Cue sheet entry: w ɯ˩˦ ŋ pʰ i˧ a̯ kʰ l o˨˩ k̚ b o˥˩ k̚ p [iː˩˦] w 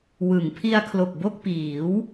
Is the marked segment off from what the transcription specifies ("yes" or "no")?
no